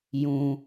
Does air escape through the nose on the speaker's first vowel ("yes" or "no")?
yes